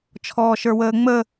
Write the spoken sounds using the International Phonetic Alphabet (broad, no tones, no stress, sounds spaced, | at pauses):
t͡ʃʰ ɔː ʃ ə˞ w əː ŋ͡m ə